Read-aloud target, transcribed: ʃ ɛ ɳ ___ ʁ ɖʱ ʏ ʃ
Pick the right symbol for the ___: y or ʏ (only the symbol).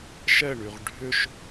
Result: y